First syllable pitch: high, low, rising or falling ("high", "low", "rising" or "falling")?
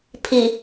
low